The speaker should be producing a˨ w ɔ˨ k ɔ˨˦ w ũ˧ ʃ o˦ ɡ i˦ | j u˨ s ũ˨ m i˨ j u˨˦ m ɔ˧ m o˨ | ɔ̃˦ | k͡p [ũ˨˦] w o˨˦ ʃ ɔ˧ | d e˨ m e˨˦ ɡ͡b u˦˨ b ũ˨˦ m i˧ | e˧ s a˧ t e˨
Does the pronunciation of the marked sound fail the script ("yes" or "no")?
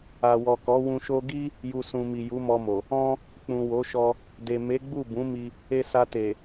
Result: yes